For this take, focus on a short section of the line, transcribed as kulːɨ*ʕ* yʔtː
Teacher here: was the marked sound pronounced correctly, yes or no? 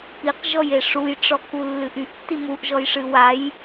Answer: no